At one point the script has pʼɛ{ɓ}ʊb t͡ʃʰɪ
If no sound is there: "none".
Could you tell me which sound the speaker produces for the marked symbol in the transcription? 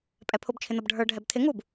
pʰ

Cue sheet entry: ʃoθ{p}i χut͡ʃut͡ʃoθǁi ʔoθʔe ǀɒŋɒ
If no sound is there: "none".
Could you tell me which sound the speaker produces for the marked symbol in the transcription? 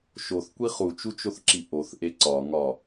kʷ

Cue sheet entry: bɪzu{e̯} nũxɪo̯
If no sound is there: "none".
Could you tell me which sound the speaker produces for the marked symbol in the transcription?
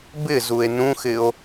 e̯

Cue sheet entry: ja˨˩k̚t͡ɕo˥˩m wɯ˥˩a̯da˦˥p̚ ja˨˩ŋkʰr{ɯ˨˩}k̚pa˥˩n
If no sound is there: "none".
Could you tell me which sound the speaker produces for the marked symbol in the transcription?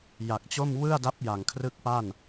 ɯ˥˩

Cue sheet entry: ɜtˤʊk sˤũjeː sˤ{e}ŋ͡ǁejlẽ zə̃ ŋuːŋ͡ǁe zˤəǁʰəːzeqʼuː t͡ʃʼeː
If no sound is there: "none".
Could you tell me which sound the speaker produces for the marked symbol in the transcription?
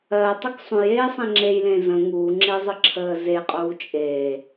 ẽ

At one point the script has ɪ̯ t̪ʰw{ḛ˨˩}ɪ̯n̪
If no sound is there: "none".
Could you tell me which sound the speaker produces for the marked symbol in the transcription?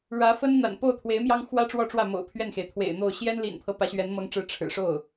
ḛ˨˩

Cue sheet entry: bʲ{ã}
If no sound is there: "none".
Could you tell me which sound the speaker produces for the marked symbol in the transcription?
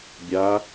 a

